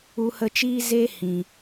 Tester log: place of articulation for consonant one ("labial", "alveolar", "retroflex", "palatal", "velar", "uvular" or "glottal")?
glottal